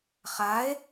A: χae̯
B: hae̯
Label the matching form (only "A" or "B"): A